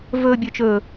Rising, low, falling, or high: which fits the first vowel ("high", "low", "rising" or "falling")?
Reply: low